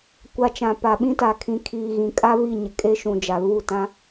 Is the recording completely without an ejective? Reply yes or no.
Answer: no